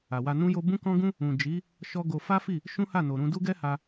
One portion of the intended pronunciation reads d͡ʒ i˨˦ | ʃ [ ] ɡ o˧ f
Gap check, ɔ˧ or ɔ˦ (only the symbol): ɔ˦